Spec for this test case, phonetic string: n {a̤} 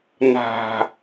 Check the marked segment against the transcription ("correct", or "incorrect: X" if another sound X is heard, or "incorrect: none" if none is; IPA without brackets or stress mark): correct